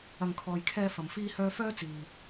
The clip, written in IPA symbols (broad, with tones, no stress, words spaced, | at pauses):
ɐ˨ŋkʰɔː˨jkʰɛː˧ fɐ˨mfiː˥hœː˥ fœː˥ t͡siː˨